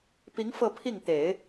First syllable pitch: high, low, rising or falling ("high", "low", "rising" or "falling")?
rising